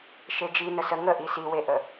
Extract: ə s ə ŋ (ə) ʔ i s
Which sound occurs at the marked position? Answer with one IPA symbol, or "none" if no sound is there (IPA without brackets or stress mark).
ə